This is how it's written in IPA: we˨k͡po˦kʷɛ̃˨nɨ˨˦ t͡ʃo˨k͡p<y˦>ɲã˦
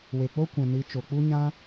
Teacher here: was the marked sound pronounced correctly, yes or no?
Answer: no